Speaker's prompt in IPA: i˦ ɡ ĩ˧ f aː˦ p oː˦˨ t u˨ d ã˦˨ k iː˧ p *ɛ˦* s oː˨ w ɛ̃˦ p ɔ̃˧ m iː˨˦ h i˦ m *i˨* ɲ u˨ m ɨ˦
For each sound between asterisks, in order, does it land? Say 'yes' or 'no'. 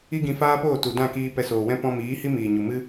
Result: no, no

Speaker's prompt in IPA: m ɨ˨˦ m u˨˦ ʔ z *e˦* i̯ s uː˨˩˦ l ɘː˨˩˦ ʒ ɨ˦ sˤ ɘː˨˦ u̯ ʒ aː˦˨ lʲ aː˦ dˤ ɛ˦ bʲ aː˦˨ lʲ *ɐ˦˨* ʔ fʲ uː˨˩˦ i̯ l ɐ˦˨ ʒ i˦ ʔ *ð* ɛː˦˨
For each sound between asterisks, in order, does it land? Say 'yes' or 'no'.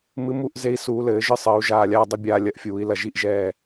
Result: no, yes, no

